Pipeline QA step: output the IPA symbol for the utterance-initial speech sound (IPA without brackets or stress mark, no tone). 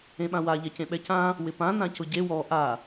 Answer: ẽ